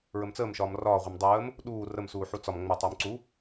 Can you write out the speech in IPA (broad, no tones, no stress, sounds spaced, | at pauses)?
ɹ ə m t͡s əː m ʃ ɒː m r ɒː ʁʷ ə m dˤ əː m | ɗ uː r ə m s uː ħ u t͡s ɒ m ŋ͡m ə tˤ uː m ǀ u